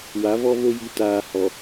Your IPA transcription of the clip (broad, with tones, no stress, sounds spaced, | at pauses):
w a˨˦ v ɔ˦ v o˦ j i˨ t aː˨ h ɔ˨